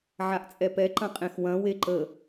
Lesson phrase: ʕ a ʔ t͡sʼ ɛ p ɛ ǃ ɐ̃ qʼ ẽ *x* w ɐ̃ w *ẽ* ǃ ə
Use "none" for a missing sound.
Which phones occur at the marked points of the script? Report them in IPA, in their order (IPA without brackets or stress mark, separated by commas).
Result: x, e